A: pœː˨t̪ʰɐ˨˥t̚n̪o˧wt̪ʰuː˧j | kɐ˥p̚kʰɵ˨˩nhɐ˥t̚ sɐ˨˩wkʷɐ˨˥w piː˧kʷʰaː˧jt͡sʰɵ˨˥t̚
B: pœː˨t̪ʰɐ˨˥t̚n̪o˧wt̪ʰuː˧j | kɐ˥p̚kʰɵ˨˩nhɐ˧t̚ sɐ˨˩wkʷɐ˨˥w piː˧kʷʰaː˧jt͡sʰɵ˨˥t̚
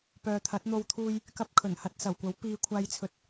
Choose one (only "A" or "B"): B